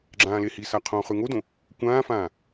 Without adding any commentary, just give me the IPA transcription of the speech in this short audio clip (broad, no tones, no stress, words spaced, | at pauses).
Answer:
ɡ͡ǁãːlehisa qʰõːχʉŋodõ | kʷãːfãː